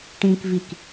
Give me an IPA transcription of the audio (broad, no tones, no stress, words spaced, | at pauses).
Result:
ʈĩkvik